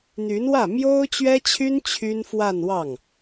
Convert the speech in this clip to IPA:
n̪y˧˥nwä˥˩ mjo˥ʊ̯t͡ɕɥɛ˥t͡ɕʰy˥n t͡ɕʰy˥n fwa˥˧nwɑ˥˩ŋ

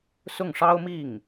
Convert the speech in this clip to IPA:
sʊ˥˩ŋʂɑ˥ʊ̯ mi˥˩ŋ

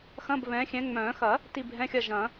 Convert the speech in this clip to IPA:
xɐ̃˧˥˧bβɛ̃˨˦xʲɛ̃˨˦ ŋ͡mœ̃ː˨˩˦ xɐ˨˩˦ | ti˦˨bʱɛ̃˧˥˧xʲɐ˦˨ʒɐ̃˨˩˦

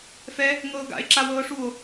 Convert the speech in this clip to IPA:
fɛ | ŋɤːɡa̰e̯ ǁawɤːʂuo̯

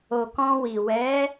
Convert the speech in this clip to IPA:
o˨ kɔ̃˧wi˨ wɛ˨˦

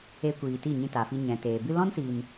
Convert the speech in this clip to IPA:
e˧kʷiː˨ ti˦˨ɲĩ˧ta˨fi˧ ɲɛ̃˨teː˨ bɨ˧lɔ̃˦nsiː˨n

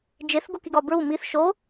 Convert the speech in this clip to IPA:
d͡ʒeθɡokiɡɒ bɹu miθ ʃo

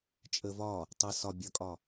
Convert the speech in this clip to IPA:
t͡ʃʼə vɒ | tˤʌ sɒ bʲʌkʼɒ

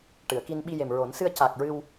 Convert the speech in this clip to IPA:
ʈɨ˨˩˨ə̯ki˧n ɓi˧ je˨˩mɹo˨˩˦n sɨ˧ə̯ca˨˩k̚ ɹɨ˧w

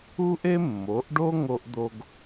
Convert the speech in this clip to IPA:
u˦ʔe˦ mːo˨˦ʔɖo˦ ŋo˦ʔd̪o˦ɡ

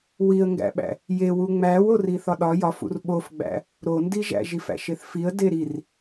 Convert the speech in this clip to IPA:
wiə̯ŋɡæ̰ɓæ̰ | jewu ŋ͡mæwori θɒɗɒ jɒfṵr ɓofɡ͡bæ̰ | ɾondiʒæ̰ʒ ifæ̰ʃeθfiə̯ deɾir

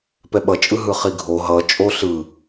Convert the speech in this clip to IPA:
pɛɓʌt͡ʃʼɯ ɦɯχiɡʱo ɦʌ t͡ʃʼo ɬɯ

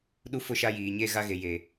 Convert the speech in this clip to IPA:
ɗu˦fʊ˦˨ʃa˦ jiː˨ɲeː˦ɣa˦ɣe˨ je˨

